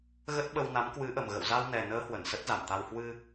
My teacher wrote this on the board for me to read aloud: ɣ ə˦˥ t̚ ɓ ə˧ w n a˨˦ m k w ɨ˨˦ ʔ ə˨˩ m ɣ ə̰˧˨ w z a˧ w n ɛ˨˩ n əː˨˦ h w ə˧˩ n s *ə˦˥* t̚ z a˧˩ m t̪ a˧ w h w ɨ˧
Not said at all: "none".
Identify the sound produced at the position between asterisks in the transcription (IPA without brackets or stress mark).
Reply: ə˦˥